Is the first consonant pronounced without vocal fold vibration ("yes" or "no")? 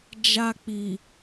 no